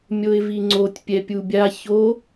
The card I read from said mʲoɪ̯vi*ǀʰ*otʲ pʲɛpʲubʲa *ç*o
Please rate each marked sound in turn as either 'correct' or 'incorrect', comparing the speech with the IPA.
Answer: incorrect, correct

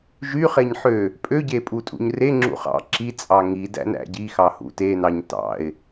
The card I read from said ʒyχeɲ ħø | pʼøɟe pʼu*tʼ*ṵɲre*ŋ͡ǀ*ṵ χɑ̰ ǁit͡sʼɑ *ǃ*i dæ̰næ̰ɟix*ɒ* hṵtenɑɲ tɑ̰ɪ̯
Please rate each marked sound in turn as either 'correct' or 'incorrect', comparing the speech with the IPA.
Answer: correct, incorrect, incorrect, incorrect

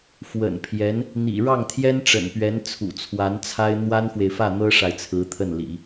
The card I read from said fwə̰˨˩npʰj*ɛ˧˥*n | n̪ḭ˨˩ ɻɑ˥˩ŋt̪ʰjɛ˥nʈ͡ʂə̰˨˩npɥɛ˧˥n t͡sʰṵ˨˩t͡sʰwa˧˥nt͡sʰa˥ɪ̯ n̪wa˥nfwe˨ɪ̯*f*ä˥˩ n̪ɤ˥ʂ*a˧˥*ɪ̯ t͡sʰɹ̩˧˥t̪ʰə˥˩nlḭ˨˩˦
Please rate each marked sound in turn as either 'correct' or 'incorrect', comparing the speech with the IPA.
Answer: correct, correct, incorrect

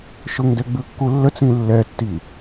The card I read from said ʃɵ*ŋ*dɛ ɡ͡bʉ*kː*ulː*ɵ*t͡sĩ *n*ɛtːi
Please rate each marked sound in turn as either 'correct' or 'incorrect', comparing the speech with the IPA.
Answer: correct, correct, incorrect, incorrect

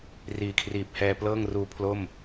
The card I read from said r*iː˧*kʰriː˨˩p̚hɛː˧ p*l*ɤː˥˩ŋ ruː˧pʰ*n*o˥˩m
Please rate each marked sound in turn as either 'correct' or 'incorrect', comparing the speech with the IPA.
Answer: incorrect, correct, incorrect

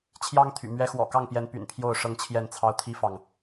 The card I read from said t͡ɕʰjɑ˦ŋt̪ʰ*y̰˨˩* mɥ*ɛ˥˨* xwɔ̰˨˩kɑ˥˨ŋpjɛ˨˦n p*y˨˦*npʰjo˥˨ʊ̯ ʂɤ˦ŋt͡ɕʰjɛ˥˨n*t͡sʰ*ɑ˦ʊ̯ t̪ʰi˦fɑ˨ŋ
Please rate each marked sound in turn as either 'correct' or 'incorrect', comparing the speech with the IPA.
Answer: correct, incorrect, incorrect, correct

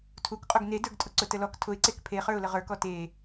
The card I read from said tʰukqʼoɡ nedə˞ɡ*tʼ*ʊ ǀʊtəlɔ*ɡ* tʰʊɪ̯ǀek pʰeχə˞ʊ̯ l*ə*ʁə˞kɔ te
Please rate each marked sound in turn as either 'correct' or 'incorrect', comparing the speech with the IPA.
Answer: correct, incorrect, correct

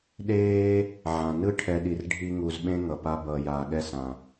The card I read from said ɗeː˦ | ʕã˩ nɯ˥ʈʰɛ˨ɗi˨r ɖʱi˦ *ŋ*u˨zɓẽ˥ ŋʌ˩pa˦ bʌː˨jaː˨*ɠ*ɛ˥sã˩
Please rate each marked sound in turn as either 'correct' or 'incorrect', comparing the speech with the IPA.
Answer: correct, correct

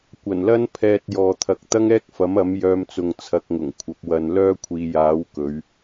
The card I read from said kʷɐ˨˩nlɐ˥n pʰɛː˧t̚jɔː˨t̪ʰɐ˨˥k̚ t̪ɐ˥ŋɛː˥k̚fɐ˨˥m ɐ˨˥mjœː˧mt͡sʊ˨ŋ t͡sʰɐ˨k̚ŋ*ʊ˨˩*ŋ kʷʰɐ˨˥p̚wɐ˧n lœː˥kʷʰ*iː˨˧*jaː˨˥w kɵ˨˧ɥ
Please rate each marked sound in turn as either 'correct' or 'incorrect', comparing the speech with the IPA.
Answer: correct, correct

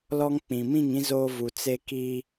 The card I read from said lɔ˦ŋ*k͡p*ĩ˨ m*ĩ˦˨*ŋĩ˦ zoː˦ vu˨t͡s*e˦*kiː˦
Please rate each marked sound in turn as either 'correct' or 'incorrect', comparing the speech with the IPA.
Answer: correct, correct, correct

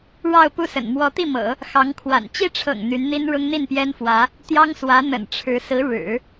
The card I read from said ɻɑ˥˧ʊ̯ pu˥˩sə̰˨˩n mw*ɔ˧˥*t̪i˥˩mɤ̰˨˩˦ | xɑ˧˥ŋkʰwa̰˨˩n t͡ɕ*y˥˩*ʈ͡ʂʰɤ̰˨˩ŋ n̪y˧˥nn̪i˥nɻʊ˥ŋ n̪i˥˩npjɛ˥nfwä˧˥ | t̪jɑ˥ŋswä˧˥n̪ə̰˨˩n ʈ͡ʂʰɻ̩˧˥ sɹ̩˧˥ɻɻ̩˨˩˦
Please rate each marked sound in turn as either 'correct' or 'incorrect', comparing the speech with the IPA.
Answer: correct, incorrect

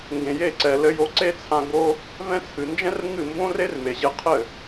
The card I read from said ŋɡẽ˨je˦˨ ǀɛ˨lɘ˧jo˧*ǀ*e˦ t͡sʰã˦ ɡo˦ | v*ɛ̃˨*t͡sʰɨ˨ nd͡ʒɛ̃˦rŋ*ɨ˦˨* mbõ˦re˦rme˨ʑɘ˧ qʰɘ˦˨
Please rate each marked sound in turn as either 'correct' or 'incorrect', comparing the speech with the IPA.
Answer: correct, incorrect, correct

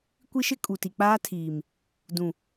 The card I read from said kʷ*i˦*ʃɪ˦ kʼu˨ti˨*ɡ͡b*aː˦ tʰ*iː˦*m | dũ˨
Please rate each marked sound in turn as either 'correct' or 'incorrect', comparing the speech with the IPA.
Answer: correct, incorrect, incorrect

